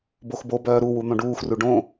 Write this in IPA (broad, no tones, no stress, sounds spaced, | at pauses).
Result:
b o x b o b œː ɾ u w u n̪ õ ɖ uː x r u ɖ õ